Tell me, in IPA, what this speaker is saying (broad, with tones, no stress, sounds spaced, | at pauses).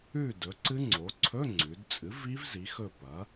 ʉ˥˨ d ɵ˩˥ ǀ ɨ˦˥ ŋ͡ǀ o˩˥ ǀʰ ɵ˧˥˧ ŋ͡ǀ ʉ˩˧ d t͡sʼ ɨ˩˥ v i˦˥ v z i˩˥ x ɵ˥˨ p ɐ˩˥